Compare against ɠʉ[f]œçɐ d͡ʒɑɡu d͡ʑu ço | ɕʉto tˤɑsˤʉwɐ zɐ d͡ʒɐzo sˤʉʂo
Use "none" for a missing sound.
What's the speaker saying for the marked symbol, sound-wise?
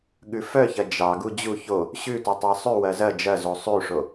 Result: f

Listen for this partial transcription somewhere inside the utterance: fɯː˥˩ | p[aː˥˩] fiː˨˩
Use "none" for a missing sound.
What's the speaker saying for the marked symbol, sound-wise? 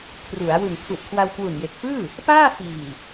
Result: aː˥˩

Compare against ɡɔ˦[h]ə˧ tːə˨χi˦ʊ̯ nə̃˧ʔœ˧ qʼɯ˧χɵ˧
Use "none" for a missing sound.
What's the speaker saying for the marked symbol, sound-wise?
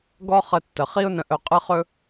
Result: χ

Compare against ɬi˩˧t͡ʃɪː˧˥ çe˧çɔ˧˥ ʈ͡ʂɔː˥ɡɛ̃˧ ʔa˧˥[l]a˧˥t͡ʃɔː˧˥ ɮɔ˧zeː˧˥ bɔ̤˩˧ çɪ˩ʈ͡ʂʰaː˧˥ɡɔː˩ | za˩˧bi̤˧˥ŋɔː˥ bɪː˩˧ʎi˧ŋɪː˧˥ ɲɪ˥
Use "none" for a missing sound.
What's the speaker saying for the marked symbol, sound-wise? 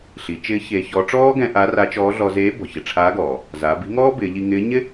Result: r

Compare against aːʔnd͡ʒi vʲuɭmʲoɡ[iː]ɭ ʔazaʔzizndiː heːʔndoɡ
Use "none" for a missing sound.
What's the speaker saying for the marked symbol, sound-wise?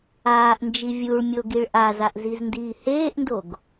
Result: i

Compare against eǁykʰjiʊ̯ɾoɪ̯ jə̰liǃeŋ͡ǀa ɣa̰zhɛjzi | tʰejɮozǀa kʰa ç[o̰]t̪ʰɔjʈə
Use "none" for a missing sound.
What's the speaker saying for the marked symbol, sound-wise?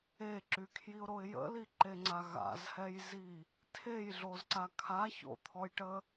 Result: o̰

